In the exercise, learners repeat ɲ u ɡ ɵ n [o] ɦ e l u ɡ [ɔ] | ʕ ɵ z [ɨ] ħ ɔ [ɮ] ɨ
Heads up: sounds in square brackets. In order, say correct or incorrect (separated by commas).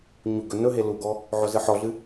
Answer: incorrect, correct, correct, correct